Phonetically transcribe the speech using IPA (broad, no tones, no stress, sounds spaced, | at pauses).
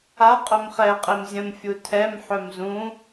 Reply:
a qʼ œ m χ ɛ qʼ e m zʲ ə̃ m fʲ u tʰ ɛ m ħ œ m z ũ